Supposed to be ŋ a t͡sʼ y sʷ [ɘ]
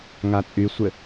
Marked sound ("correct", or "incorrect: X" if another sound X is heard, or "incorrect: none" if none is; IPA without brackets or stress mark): correct